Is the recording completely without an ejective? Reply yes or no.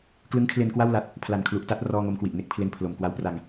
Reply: yes